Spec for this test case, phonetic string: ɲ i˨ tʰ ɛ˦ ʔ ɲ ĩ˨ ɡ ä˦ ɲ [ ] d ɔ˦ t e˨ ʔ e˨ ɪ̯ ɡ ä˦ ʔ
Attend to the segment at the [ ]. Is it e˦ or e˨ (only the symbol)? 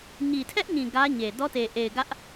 e˨